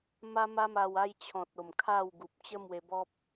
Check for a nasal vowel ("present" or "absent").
present